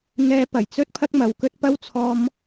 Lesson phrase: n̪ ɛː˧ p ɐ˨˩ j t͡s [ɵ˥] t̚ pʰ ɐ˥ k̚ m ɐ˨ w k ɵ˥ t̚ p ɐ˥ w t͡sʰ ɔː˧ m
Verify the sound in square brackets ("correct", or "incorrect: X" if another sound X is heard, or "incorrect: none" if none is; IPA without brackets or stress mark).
correct